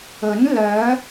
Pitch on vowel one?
rising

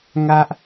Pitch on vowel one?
high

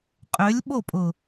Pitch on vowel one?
rising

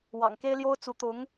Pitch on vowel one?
low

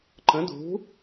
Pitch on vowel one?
rising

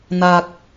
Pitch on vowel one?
low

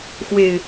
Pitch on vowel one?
low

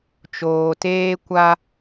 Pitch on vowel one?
low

